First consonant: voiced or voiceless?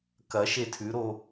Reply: voiceless